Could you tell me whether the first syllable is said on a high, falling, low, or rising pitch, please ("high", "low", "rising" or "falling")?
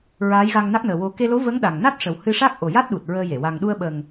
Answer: rising